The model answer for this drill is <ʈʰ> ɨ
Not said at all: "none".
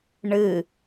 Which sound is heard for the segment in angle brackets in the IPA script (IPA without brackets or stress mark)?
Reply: ɳ